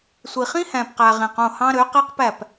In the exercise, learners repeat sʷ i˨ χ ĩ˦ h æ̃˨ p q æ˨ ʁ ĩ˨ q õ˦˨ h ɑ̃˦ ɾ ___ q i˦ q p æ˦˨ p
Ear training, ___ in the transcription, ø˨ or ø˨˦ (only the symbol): ø˨˦